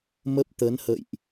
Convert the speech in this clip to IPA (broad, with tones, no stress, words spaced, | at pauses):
mə˦˥p̚t̪ə˨˦nhə̰˧˨jʔ